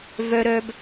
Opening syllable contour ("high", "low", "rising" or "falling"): high